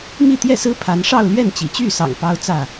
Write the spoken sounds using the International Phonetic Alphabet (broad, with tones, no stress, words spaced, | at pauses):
mi˥˨t̪jɛ˥˨sɹ̩˦ pʰa˨˦nʂɑ˥˨ʊ̯ lɥɛ˥˨nt͡ɕḭ˨˩t͡ɕy˥˨sɑ̰˨˩ŋ pɑ˦ʊ̯t͡sä˥˨